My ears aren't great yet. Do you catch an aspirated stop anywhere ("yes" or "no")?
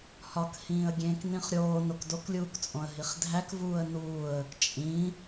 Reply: no